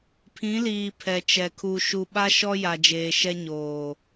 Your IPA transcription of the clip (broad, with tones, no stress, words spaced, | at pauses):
pʰĩ˨˦liː˨ pʰɛ˨t͡ʃɛ˨ kʰu˨ʃu˨ɓa˦ ʃɔ˦ja˨d͡ʒeː˨ʃɛ˦ ɲoː˨